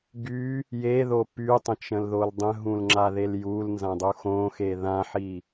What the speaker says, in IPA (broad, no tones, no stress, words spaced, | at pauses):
ɡy | jeðo pytˤə̃ t͡ʃə̃lðoldˤə̃ɦũl ŋ͡ǁaðeljulnzã dˤuxõxe ðãħi